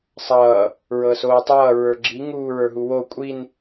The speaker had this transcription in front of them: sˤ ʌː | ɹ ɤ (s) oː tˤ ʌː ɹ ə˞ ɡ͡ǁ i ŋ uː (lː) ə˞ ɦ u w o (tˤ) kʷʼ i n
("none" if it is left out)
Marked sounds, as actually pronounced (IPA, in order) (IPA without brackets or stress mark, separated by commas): s, ɹ, none